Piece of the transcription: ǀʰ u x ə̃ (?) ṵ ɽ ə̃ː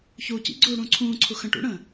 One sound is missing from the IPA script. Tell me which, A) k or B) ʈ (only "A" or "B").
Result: B